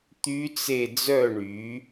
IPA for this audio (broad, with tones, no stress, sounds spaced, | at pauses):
t̪ y˦˥ t͡s e˦˨ d͡z œ˦˨ ɳ y˩˧